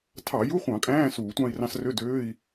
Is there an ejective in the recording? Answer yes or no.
yes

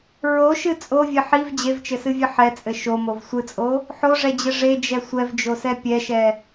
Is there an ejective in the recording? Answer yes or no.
yes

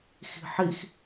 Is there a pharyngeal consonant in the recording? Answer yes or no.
yes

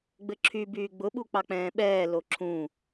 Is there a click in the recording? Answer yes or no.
yes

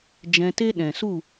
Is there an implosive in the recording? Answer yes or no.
yes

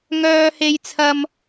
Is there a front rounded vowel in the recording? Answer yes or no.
yes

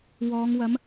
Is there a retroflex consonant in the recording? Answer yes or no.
no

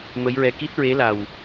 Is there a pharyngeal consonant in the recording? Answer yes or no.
no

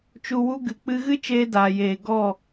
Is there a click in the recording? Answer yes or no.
no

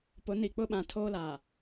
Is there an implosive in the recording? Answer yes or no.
yes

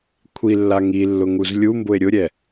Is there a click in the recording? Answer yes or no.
no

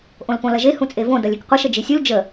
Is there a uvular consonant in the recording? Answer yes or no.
yes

